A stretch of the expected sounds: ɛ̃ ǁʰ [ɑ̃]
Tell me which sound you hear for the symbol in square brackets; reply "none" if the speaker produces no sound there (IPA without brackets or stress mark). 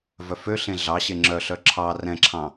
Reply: ɑ̃